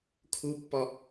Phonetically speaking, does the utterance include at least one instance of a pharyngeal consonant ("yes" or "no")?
no